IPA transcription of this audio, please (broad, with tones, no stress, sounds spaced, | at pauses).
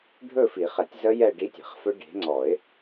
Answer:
ɖʱ ɵ˥˧ f i˨˩˦ χ ɛ˨˩˦ tʲ z ə˦˥ j ɛ˥˧ ɖ i˦˥ tʲ ɛ̤˨˩˦ χ f ɵ˦˥ ɖ e̤˨˦ ŋ͡ǀ ɔ˨˩˦ ɪ̯